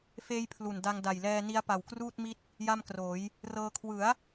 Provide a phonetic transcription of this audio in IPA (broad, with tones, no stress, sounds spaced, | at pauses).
f eː˦˥ j pʰ l u˨˩ n d a˧ ŋ d a˨˩ j l ɛː˧ n i˦˥ a̯ p a˨˩ w k r uː˥˩ t̚ m i˦˥ t̚ | j a˥˩ m k r oː˩˦ j | r ɤː˧ kʰ w ɯ˩˦ a̯